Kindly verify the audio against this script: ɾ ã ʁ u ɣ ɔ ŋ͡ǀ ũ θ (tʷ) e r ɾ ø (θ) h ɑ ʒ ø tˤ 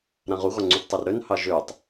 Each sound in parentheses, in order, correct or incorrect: incorrect: tˤ, incorrect: n

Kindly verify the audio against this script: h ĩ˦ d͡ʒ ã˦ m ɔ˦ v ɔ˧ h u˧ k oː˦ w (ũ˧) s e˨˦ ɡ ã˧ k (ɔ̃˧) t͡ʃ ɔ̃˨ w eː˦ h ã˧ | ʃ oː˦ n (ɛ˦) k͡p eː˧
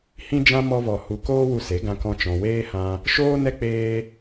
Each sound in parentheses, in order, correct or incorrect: incorrect: u˧, correct, correct

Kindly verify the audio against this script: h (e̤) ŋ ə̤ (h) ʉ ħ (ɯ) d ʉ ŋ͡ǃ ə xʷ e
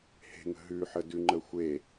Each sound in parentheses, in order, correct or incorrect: correct, incorrect: ɦ, incorrect: ə

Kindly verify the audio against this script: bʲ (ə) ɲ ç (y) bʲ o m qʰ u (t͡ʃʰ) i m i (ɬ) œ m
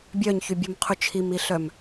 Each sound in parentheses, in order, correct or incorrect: incorrect: œ, correct, correct, correct

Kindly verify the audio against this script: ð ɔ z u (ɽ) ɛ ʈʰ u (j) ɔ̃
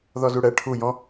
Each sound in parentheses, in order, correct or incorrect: correct, correct

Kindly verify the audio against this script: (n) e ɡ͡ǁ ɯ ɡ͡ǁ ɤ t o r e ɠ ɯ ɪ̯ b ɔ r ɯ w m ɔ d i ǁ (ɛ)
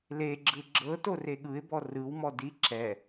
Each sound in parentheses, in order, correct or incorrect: incorrect: l, correct

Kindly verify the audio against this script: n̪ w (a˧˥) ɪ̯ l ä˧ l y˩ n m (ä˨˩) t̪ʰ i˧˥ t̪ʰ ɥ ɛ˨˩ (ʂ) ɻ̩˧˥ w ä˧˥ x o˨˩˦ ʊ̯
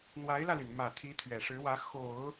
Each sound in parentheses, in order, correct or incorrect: correct, correct, correct

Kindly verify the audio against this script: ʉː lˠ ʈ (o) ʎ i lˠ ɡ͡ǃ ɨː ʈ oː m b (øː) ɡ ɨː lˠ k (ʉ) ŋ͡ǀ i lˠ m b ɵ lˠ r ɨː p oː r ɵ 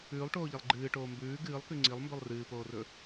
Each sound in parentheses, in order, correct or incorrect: incorrect: oː, incorrect: ʉː, correct

